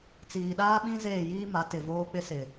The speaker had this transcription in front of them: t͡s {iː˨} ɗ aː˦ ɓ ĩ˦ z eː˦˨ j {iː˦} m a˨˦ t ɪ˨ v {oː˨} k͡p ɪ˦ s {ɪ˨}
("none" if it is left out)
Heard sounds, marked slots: iː˨, iː˦, oː˦, ɪ˨

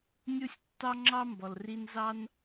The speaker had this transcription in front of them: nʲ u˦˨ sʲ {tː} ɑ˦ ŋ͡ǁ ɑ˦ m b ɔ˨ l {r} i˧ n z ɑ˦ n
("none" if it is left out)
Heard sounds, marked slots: tː, r

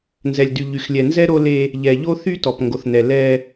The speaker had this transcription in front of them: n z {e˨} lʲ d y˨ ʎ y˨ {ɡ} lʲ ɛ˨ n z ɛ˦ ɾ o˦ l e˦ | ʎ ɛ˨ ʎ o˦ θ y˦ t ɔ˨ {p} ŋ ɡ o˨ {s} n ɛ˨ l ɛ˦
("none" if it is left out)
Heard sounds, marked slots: ɛ˨, x, p, θ

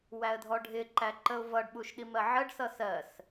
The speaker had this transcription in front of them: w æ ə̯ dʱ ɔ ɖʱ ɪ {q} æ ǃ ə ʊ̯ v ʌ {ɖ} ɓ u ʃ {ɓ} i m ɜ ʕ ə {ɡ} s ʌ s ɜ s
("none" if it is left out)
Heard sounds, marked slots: ǃ, ɖ, ɗ, ɖ

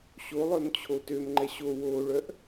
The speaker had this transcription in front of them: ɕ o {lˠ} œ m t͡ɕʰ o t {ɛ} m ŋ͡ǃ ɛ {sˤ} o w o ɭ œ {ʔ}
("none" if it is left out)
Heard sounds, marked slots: lˠ, ø, ɕ, ʔ

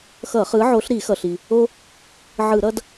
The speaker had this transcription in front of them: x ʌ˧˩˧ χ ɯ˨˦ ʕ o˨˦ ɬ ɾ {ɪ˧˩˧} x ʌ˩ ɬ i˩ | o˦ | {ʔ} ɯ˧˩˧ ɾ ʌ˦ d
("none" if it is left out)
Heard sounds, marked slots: i˧˩˧, ʕ

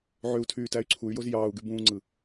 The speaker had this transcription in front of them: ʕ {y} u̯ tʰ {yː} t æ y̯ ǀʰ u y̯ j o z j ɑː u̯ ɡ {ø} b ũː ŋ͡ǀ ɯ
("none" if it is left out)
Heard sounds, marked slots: ø, yː, y

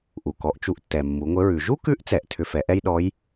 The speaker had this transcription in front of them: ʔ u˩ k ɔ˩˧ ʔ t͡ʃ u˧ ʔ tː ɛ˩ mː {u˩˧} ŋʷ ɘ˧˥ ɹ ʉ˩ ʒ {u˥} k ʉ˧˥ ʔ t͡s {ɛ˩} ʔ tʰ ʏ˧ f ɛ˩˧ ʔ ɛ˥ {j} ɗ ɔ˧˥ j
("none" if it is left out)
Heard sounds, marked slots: u˩˧, u˥, ɛ˩, j

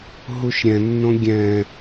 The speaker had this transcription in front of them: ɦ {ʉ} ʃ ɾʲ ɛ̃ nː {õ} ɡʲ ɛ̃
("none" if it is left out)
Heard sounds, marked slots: u, õ

